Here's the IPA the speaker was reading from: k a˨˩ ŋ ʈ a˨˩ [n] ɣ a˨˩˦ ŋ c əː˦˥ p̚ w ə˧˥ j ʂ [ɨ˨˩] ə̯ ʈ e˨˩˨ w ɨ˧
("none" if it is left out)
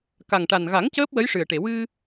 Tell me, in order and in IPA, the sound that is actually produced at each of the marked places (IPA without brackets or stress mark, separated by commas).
n, ɨ˨˩